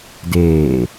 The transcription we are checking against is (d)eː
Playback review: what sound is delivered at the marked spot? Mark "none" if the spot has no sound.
d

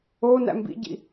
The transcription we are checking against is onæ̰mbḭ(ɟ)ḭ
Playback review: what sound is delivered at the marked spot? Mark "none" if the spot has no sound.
ɟ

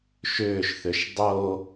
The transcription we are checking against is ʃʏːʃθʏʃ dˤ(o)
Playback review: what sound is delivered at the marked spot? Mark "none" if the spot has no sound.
o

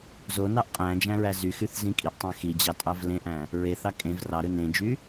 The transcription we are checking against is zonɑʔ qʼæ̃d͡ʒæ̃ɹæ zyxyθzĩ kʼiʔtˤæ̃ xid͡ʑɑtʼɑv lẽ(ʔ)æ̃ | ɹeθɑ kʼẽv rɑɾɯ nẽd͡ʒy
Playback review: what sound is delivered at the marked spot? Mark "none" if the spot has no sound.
ʔ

